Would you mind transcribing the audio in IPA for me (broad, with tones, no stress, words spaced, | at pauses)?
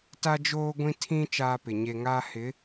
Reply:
ta˦d͡ʒoː˦ɡʷĩ˦ tʰĩ˦ t͡ʃaː˦pɪ˨ ɲe˨ ŋaː˦ hɪ˨˦